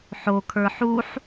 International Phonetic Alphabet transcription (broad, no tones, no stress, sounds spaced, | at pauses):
ħ o kʰ ə˞ ħ u ħ